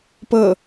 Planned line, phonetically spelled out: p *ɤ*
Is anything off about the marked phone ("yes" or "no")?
no